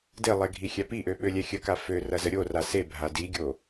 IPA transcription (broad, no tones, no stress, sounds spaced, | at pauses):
d e lˠ ɛ ɡʱ i xʲ æ p i ʔ ø ɓ ø lʲ ɛ xʲ ə k a f ø r ɐ z ə ɾʲ o r a s e bʱ a d i ɡʲ o